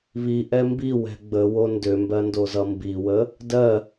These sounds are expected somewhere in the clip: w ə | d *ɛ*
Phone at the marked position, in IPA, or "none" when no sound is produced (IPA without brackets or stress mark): ɜ